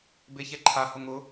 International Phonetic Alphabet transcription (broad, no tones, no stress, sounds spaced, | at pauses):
b e ç ɛ ǃʰ a h ʊ ŋ ʊ